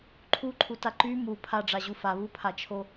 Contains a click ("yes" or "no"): yes